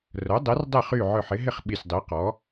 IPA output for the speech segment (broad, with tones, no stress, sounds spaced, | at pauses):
r œ˩˥ dˤ e˩˥ r dˤ e˥˨ χ y˥˨ ʕ œ˧˩ ħ ɪ˩˥ ɦ ɪ˥˨ χ ɓ i˧˩ sʲ dˤ i˩˥ q ɔ˩˥